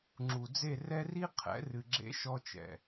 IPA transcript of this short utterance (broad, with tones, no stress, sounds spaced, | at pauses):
ŋ͡ǁ u˨ d͡z e˦˨ r ɛ˦ r i˦ qʰ ɛ̰˨˦ r ɨ˧ ɡ͡ǁ ḛ˦ ʃ ɔ˦ t͡ʃ ɛ̰˨